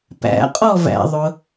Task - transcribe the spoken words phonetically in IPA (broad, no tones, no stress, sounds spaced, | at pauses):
p æ̰ qʼ ɔ v æ̰ ðˤ ʊ